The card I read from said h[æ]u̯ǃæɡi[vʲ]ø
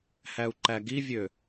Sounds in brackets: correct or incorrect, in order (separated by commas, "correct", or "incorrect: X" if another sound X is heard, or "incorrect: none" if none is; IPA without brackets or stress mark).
correct, correct